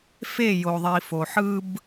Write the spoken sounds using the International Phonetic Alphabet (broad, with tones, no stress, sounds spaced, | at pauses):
f e˦˨ j o˨ ðˤ i˨ f o˨ ħ ɯ˦ b